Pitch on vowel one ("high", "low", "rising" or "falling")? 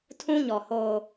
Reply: high